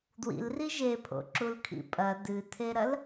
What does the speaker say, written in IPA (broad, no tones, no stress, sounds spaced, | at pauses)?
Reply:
d w ḭ l r i ʒ e pʰ o̰ ǁ u l kʰ ḭ pʼ ɐ d ɨ tʰ e ɾ ɐ l